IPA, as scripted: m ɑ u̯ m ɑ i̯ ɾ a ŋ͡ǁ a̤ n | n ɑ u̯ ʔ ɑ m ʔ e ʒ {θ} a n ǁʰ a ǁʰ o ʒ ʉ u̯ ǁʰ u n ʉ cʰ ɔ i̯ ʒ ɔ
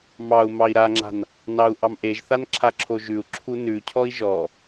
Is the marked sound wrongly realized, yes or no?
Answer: no